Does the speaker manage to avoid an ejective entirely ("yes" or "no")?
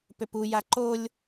yes